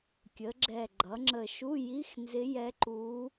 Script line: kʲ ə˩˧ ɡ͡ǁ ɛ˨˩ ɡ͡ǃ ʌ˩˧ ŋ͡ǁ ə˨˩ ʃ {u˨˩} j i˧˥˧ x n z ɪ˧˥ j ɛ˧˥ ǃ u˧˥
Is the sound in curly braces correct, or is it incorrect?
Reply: incorrect